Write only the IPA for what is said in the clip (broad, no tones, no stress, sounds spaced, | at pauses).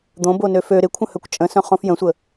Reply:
d̪ õ b o n ø f ø ɾ ɪ kʷʰ ə̃ h œ kʷ t͡ʃʼ ə̃ s œ̃ χ õ f j ə̃ sʷ ə